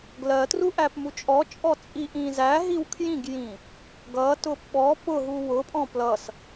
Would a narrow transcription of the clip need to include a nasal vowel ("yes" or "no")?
yes